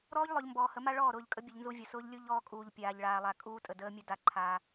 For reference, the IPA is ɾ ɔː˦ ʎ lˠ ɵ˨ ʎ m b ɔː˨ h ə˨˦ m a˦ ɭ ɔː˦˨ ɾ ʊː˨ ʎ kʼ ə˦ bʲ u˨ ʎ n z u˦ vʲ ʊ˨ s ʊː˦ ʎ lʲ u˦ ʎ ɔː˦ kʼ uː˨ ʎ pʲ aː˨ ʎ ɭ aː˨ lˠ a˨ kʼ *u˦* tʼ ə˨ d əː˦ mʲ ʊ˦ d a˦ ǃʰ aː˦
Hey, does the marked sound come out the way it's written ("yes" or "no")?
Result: no